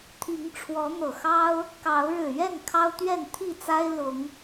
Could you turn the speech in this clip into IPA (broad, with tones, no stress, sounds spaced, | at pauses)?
t̪ʰ i˨˦ ŋ ʈ͡ʂʰ w ɔ˨˦ n̪ ɤ˨˩ x ɑ˦ ʊ̯ | k ɑ˨˦ ʊ̯ ɻ ɻ̩˨˩ ɥ ɛ˥˨ n kʰ ɑ˦ ʊ̯ t̪ ɥ ɛ˥˨ n t̪ʰ i˥˨ t͡s a˦ ɪ̯ l ʊ˨˦ ŋ